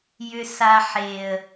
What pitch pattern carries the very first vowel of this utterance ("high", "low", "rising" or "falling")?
low